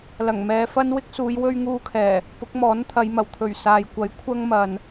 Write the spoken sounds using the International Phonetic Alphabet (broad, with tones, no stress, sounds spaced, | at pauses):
l ɐ˨˩ ŋ m ɛː˨˧ f ɐ˥ n w ɪ˥ k̚ s uː˨˧ j w ɵ˧ ɥ ŋ uː˧ kʰ ɛː˨˩ | p ʊ˨˥ k̚ m ɔː˨˥ n t̪ʰ ɐ˨˧ j m ɐ˨˩ w t̪ʰ ɵ˨˩ ɥ s aː˨ j kʷ ɐ˨˥ j kʷʰ ɐ˥ ŋ m ɐ˨ n